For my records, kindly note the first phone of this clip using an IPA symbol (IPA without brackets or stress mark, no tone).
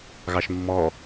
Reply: ɣ